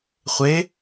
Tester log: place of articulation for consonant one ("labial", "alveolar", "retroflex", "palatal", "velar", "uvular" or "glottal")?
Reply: uvular